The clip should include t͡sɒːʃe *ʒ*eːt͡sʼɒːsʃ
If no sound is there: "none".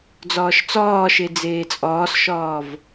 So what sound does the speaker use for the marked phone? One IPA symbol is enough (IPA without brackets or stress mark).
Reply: d͡z